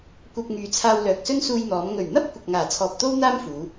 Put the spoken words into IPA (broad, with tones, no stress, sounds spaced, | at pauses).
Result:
kʷ ɐ˧ p̚ ŋ yː˨ t͡sʰ aː˧ w l œː˨ k̚ s ɵ˥ n s uː˧ j n̪ ɔː˨˧ m ŋ ɵ˨˩ ɥ n̪ ɐ˥ p̚ kʷ ɐ˨ k̚ ŋ aː˨˩ t͡sʰ ɔː˨ p̚ t̪ o˥ w n̪ aː˥ m f uː˨˧